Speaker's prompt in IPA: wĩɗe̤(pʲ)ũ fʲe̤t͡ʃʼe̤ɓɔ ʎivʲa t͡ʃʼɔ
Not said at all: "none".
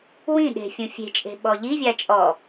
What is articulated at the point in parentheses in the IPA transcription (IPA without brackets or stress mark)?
fʲ